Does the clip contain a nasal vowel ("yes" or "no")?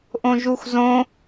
yes